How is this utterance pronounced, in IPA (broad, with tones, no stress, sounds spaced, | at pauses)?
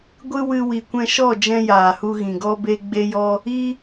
ɡʷ ɨ˦ w ɨ˧ w i˨ kʷ ɛ̃˧ ʃ ɔ˦˨ d͡ʒ ɛ̃˦ j aː˨ h u˧ ɣ ĩ˨ ɡ ɔ˧ b e˧ ɡ͡b e˦ j ɔ˦ | i˧